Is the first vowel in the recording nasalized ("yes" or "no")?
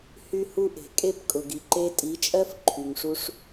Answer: no